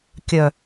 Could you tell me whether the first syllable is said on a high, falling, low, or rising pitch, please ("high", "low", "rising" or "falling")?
low